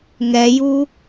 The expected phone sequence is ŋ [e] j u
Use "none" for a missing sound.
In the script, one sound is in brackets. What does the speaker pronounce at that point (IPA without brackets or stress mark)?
ɛ